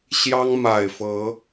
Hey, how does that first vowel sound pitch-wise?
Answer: high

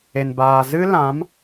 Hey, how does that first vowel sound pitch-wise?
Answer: low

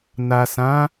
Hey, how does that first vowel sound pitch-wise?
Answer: low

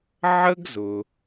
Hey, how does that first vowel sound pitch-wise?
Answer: high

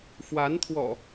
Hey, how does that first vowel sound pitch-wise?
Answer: rising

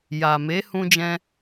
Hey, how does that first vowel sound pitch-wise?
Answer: low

